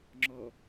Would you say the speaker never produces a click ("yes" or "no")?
no